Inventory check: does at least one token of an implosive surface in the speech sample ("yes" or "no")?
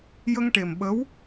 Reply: yes